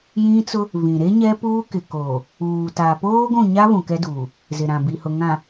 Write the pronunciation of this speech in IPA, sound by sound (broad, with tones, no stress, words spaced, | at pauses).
jĩ˦t͡sʊ˦ | vĩ˨ɾe˦ ɲɛ˦puː˦kɪ˨koː˨ | uː˨ta˨ poː˦ɡʷũ˦˨ɲa˦ βũ˨ kɛ˦duː˨ | zɪ˨ɾã˨bi˨hʊ˨ ŋã˨